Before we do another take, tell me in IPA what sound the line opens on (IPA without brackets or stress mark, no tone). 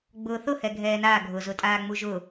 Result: ɡ͡b